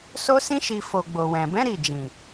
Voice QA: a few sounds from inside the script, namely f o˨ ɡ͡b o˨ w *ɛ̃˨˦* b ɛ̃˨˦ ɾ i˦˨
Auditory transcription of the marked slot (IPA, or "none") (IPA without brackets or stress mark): ɛ̃˨